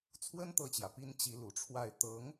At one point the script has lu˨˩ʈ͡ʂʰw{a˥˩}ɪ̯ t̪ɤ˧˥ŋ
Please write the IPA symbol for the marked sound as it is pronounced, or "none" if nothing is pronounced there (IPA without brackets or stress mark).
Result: a˥˩